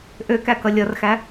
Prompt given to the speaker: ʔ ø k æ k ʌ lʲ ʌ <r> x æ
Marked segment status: correct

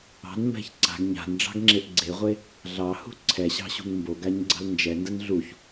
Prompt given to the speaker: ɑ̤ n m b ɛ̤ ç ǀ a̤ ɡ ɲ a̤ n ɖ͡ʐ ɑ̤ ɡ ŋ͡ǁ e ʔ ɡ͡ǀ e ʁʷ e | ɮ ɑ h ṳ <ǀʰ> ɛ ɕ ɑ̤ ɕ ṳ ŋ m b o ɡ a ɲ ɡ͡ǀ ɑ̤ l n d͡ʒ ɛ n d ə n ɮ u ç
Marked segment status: correct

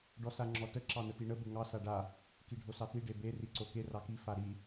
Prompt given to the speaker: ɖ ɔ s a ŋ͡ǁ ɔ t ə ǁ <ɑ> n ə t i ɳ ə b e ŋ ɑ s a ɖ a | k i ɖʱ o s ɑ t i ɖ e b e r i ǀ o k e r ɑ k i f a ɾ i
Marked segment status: correct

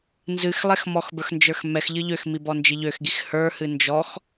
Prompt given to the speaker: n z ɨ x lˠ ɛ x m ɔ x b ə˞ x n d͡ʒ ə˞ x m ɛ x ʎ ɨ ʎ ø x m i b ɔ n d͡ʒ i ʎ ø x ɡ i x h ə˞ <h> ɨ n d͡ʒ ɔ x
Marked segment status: correct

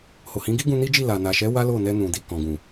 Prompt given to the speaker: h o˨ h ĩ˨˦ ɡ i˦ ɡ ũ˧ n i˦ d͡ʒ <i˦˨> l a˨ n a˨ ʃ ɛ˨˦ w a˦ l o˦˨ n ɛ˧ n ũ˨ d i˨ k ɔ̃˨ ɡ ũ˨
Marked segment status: correct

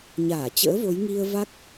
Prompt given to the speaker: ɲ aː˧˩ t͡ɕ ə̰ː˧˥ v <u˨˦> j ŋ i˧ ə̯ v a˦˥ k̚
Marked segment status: incorrect: o˨˦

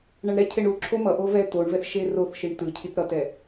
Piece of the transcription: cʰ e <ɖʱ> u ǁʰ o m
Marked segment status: incorrect: ɳ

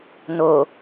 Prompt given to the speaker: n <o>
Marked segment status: correct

